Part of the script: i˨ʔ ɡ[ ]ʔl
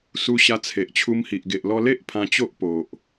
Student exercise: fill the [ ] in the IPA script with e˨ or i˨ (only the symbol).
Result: e˨